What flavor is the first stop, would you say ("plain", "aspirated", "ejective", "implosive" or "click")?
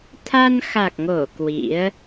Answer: aspirated